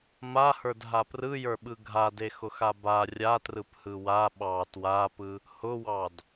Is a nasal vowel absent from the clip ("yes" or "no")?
yes